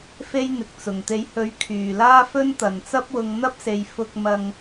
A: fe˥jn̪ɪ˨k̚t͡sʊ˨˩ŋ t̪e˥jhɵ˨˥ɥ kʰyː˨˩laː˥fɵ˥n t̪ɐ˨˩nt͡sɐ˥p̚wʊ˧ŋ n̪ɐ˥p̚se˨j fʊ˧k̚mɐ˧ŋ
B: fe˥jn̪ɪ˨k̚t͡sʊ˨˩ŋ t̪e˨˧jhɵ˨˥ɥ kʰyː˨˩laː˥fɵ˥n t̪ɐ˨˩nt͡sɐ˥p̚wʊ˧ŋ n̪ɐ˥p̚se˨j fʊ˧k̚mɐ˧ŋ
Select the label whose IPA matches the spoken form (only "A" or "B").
B